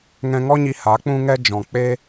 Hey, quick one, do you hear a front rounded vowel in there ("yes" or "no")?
no